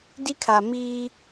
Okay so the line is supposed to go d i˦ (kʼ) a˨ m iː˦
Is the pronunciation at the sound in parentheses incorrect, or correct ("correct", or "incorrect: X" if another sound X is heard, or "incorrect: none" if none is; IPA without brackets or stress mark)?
incorrect: kʰ